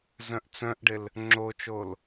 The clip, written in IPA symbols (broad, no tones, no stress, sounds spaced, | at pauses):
z œ̃ ʔ t͡s œ̃ ʔ ɖ ɪ l | ŋ͡ǁ o t͡ʃ o l